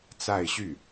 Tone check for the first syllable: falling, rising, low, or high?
falling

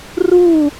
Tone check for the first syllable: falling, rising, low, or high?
falling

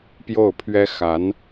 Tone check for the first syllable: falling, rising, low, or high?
falling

